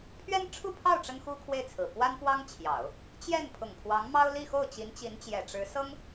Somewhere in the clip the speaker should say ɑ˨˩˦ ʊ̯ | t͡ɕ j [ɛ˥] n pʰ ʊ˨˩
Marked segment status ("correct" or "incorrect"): incorrect